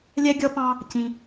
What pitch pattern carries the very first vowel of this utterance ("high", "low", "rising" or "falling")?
high